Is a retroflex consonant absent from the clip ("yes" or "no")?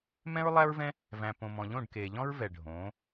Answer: no